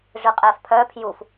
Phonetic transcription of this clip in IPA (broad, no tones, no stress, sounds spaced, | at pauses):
ʐ ɨ qʼ ɛ f pʰ œ pʰ j u f